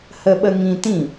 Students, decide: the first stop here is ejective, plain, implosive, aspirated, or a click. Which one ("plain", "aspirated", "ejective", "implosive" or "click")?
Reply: implosive